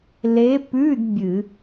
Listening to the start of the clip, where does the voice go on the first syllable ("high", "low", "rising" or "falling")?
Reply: rising